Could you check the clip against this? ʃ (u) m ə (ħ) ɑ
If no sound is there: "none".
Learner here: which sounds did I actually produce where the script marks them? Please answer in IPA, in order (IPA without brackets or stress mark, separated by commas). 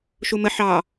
u, ħ